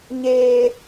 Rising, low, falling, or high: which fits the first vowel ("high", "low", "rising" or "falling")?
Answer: high